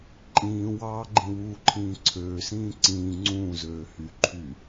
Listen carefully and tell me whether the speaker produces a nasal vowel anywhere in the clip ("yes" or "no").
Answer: yes